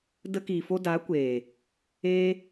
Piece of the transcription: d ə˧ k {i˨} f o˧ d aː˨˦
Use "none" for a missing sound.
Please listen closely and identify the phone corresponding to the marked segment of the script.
i˨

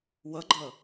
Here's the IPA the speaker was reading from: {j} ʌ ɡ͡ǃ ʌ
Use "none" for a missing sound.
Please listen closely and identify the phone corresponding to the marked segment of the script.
w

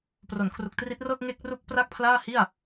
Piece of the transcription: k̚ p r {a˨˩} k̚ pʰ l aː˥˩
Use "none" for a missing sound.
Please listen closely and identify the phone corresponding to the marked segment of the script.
a˥˩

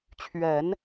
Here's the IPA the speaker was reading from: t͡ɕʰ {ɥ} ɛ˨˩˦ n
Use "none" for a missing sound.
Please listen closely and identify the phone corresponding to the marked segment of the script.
ɥ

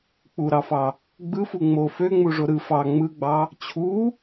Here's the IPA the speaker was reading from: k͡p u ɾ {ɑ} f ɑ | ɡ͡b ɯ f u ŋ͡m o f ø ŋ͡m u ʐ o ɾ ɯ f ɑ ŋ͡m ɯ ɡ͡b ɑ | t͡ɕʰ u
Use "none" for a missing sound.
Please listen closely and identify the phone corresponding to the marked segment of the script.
ɑ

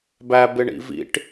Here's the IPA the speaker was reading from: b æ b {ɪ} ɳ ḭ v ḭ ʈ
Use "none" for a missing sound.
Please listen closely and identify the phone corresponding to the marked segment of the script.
ɪ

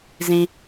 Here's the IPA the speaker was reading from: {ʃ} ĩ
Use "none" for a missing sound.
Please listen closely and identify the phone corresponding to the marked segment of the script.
z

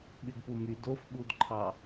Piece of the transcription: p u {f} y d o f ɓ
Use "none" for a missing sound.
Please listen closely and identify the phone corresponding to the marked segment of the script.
m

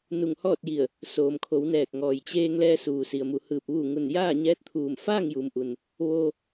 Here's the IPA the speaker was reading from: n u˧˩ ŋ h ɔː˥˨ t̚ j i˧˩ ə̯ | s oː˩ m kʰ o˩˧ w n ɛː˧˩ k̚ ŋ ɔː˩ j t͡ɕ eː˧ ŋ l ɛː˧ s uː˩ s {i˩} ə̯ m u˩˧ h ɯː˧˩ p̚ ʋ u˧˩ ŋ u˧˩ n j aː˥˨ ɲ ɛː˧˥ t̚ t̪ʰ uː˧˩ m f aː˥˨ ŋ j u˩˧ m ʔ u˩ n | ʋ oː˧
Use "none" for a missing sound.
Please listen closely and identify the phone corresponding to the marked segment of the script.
i˩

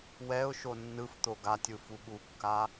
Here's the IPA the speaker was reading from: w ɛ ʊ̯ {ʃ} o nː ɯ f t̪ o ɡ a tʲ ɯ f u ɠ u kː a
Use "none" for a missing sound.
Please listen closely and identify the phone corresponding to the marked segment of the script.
ʃ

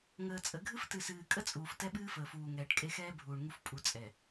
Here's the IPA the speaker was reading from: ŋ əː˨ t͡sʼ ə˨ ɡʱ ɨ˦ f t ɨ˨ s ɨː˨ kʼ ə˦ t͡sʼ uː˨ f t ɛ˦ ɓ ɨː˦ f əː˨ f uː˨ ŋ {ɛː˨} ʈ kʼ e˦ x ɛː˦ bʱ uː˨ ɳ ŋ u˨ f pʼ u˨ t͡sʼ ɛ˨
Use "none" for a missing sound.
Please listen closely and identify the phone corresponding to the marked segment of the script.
ɛː˨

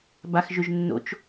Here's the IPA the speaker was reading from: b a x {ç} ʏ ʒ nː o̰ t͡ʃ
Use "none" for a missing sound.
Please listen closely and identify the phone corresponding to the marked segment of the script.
ʒ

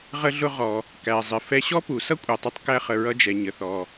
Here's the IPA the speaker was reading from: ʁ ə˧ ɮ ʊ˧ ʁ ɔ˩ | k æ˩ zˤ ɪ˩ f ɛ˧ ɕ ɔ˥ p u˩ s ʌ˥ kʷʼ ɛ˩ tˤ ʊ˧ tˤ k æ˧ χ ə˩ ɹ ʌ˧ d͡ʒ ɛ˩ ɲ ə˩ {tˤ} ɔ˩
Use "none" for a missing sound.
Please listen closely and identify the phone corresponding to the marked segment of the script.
θ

